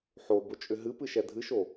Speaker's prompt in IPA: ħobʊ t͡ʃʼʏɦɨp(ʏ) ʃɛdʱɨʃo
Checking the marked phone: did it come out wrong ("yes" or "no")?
yes